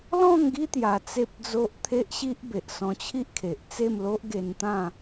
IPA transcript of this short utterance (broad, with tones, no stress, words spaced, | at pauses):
lɔ̃˥˧ŋɡi˦ t̪ja˧t͡se˦p̚d͡zo˦ʔ t̪ʰe˦ʔɕi˦ʔ be˨ʔ sɔ̃˧t͡ɕʰi˦ʔkʰe˨ʔ t͡se˥˧mlo˦ʔɡe˧nt̪ã˥˧